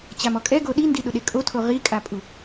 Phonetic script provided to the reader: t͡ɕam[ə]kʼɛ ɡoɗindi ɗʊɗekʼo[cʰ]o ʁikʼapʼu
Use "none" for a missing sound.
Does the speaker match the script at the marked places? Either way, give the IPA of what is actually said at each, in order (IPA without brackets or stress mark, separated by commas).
ɔ, tʰ